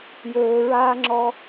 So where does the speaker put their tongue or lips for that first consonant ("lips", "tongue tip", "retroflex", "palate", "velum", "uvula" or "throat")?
palate